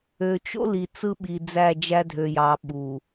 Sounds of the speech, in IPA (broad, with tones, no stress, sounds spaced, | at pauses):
ø˨ t͡ʃ o̰˦ l i˨ t͡s ɯ˦ ɓ i˨ d͡z æ˦˨ d͡ʒ æ˦ dʱ ø˨ j ɑ˨˦ ɓ u˨